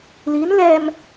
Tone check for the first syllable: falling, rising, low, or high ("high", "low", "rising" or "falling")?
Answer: rising